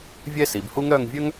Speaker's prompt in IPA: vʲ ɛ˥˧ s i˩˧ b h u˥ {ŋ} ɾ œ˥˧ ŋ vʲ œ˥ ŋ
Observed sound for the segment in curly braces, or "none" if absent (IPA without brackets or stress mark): ŋ